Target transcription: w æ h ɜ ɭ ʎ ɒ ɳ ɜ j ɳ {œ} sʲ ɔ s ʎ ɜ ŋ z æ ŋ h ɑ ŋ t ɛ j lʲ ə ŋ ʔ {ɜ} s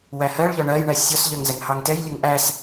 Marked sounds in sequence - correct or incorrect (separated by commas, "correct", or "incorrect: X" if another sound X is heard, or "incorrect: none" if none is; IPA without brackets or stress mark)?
incorrect: æ, incorrect: æ